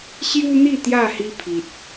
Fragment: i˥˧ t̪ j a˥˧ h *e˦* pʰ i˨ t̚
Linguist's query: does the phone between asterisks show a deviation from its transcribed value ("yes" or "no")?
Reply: yes